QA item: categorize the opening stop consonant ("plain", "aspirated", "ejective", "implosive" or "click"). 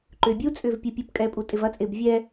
click